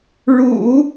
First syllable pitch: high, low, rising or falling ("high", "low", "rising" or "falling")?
low